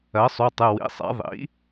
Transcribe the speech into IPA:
ɜ˩˥sˤu˩˧˩tˤɨ˩˧˩ wḭ˩˧˩sˤɛ̰˩˥ ðˤḭ˩˥

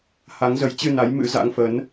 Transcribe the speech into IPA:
ha˨˦ŋzə˨˦jt͡ɕɨ˧na˨˦j mɨ̰˧˥za̰˧˥ŋfə˨˦n

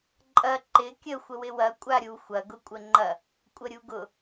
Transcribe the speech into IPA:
ǃʼɐ ǃɪ kʲə xʷəwɪwɐ kʷʼaɾʲu xʷɐ ɡʊkʷʼəŋ͡ǃɐ | kʷʼəɾʲuɡʊ

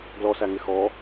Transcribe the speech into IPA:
ɡlɔsæŋɪ xɔ

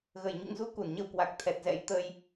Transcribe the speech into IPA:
ɣə˧˩jɲṵ˧˨ŋzu˨˦ ku˧˩nɲə˧wkwa˨˩k̚ t̪ʰɛ˨˩t̚zɛ̰˧˥j t̪ə˧j

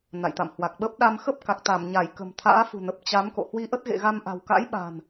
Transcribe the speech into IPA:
na̰˧˨jt̪a̰˧˨mhwa˨˩k̚ɓə˦˥p̚ ɗa˧mxə˦˥p̚ka˨˩k̚ t̪a˧˩mɲa˧˩j kə̤˨˩m t̪ʰa̰ː˧˥fṳ˨˩nə˨˩p̚ t͡ɕa˨˦m ko̰˧˨hwi˧ʔə˦˥t̚ɣḛ˧˨ ɣa˧mʔa̤˨˩wka̰˧˥j ɓa̤˨˩n

